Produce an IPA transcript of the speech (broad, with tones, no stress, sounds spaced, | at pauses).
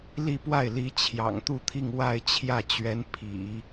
l i˥˧ p w a˥˩ ɪ̯ l i˧˥ t͡ɕʰ j ɑ̰˨˩ ŋ t̪ u˥˧ t̪ʰ i˥˧ ŋ w a˥˧ ɪ̯ t͡ɕʰ j ä˥˩ t͡ɕ ɥ ɛ˧˥ n pʰ ḭ˨˩˦